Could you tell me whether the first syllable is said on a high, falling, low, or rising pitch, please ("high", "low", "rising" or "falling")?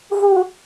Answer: high